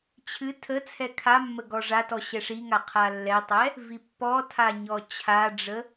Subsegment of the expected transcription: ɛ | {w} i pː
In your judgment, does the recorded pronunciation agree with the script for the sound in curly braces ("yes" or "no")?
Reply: no